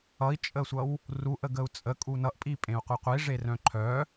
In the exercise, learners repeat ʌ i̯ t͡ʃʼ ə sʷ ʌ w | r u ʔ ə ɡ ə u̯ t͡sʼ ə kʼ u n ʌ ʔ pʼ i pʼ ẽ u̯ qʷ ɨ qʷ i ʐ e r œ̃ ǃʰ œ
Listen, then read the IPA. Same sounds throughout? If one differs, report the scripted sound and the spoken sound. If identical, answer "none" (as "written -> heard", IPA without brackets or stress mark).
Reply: none